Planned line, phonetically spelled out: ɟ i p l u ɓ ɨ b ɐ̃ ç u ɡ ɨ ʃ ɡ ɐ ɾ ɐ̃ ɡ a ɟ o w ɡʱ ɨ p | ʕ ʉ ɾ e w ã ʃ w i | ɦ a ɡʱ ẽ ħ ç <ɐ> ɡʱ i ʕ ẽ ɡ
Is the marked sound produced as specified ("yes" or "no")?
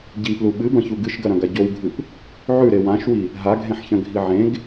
no